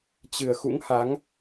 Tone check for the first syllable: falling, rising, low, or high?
low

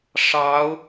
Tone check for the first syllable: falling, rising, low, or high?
rising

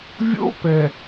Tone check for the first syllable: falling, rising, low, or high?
high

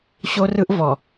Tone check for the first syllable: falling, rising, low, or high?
high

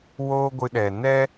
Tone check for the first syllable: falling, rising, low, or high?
high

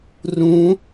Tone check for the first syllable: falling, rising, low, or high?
rising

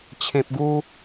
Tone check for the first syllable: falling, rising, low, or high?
low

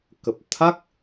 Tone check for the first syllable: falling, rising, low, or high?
low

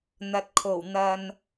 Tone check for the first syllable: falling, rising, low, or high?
low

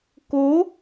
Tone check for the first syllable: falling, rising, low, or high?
rising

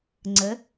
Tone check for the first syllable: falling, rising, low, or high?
rising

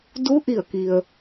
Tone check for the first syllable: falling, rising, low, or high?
rising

